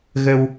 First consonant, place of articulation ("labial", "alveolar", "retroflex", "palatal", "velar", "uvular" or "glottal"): velar